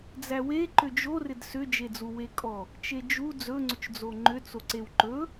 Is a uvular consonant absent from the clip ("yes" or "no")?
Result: yes